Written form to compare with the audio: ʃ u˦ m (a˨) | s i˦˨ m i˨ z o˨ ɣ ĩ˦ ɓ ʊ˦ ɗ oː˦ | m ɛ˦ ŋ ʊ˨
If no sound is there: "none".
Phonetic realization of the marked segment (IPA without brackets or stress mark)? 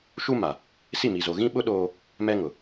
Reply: a˨